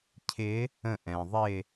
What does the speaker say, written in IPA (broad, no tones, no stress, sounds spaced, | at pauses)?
cʰ ɪ | ə̃ ʔ ɛ̃ ðˤ ɪ